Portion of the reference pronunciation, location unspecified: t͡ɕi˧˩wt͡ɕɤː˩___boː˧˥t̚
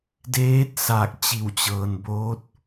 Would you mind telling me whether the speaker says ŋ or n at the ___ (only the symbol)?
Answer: n